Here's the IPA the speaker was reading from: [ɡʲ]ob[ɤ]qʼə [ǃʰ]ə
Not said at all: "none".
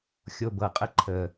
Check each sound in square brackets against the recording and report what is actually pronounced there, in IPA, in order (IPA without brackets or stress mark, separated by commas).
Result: xʲ, ɤ, ǃʰ